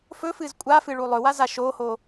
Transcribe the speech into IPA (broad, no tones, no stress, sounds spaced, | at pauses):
f ɵ f ɨ z kʷʼ a f ɨ ɭ u lˠ ɵ w a z a ʃ o h o